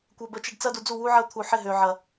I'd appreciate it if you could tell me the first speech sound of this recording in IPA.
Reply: kʷ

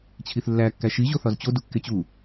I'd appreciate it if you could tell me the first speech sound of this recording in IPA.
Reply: t͡ɕʰ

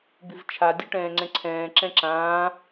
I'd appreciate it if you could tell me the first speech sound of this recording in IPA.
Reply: b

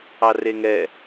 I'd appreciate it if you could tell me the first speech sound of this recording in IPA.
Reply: ɑ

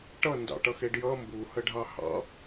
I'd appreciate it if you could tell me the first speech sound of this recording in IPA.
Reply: ʈ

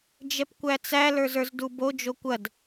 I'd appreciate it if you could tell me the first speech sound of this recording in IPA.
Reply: d͡ʒ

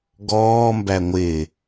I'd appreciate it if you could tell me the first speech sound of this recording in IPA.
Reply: ɡ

